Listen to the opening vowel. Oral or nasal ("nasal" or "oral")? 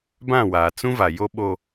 nasal